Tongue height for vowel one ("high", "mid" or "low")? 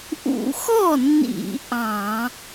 high